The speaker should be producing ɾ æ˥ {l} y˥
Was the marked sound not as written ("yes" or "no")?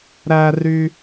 yes